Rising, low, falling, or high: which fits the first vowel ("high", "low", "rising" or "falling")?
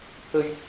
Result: low